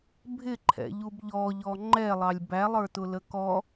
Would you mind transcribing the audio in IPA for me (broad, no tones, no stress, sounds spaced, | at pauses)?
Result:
bʱ ɪ ǃʰ ɛ̰ ʎ u b ʎ ɔ ʎ ɔ ŋ͡ǃ ɛ lˠ ɑ lʲ b æ lˠ ə˞ t ʊ l ə k ɔ